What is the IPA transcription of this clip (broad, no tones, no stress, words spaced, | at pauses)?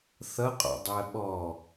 θʌqʼɔ̰dˤɜ ɓɔ